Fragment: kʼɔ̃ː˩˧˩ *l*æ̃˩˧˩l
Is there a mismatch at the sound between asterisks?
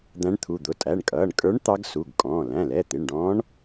no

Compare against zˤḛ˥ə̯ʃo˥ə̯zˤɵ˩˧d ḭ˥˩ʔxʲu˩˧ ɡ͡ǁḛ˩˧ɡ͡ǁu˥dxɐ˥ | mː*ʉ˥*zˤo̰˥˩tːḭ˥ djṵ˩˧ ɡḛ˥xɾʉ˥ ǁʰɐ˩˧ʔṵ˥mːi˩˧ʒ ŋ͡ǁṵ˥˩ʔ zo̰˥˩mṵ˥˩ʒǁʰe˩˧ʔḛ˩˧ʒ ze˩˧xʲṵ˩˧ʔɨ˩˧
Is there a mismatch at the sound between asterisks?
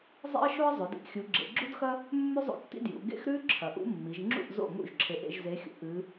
no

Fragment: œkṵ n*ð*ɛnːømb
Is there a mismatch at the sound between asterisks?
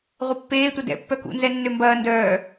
yes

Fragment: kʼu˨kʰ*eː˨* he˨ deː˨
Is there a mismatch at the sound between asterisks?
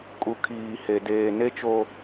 yes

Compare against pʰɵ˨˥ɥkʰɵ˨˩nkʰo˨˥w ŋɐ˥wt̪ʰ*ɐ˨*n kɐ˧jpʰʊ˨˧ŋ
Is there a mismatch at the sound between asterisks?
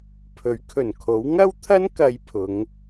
yes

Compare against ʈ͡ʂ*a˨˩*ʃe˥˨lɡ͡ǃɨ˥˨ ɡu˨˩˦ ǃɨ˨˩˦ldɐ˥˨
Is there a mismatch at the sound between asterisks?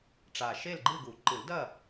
no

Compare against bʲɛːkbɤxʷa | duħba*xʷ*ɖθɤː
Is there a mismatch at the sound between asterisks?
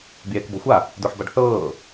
yes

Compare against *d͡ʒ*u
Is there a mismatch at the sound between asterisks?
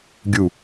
yes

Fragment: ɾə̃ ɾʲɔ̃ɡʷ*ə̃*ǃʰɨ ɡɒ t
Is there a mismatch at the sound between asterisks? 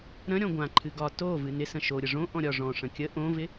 yes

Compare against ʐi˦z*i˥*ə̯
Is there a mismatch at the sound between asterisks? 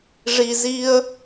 no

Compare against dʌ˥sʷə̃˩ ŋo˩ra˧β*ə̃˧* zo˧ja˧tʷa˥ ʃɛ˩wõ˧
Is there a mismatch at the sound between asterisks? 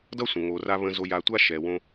no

